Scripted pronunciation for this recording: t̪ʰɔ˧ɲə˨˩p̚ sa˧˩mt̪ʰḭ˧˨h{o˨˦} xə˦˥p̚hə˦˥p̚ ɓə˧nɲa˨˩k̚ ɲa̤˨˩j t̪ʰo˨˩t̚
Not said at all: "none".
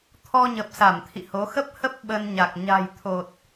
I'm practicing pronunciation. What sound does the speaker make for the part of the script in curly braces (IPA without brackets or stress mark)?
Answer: o˨˦